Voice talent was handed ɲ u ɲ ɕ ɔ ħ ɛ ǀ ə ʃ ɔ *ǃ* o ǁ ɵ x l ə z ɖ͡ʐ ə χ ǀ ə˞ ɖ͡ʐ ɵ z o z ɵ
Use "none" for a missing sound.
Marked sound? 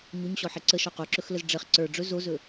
q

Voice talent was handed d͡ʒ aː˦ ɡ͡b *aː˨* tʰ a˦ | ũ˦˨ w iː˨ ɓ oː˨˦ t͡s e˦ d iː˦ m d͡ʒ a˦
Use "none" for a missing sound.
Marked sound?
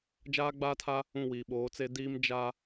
aː˦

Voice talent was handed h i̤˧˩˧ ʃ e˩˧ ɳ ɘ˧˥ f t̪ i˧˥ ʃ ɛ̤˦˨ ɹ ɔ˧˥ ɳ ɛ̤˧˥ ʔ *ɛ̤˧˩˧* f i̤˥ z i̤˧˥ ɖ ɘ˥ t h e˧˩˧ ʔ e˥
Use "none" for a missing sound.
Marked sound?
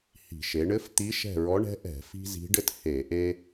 ɛ̤˧˩˧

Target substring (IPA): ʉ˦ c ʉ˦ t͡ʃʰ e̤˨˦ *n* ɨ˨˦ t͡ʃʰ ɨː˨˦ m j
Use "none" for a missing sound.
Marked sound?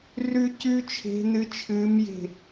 n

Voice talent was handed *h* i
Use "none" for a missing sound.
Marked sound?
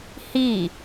h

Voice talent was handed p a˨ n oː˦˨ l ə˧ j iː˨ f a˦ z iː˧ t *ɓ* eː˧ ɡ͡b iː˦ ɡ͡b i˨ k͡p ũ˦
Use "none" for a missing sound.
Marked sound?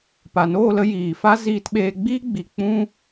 ɓ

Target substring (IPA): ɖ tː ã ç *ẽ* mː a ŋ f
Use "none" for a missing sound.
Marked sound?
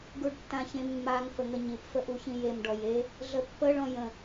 ẽ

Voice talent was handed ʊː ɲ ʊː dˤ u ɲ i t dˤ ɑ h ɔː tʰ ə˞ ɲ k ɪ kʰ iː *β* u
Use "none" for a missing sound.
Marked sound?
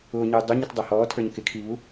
β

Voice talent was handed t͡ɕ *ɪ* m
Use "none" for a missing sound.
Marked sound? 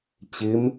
ɪ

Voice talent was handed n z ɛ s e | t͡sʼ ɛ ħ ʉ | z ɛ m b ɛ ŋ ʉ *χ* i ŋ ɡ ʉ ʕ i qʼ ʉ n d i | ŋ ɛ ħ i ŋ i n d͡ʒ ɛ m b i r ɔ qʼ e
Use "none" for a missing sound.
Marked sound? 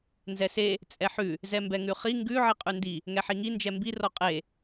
χ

